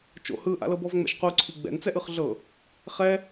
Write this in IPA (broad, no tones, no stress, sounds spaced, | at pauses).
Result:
t͡ʃ o̰ h ɯ ʔ a̰ l ɤ b ɔ v ŋ͡m ɛ̰ ʃ q u ǀʰ i ɡ͡b ɛ̰ n t͡s ɛ ʔ ɯ χ ɮ ɤ | χ ɛ